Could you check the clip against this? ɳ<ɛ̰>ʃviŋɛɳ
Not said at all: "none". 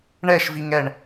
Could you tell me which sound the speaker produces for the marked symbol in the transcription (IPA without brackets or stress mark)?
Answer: ɛ